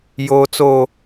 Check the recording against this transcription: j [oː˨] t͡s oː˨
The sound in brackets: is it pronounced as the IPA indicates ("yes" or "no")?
yes